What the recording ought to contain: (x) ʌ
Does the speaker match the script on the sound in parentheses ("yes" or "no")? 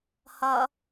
no